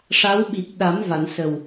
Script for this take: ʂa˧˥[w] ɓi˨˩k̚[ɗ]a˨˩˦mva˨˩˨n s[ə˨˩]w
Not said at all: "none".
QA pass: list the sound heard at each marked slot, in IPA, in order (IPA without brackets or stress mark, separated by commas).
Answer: w, ɗ, ə˨˩